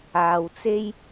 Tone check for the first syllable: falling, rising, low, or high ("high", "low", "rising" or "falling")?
low